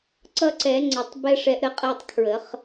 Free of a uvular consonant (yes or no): no